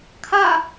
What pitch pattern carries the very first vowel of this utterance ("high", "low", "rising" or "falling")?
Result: falling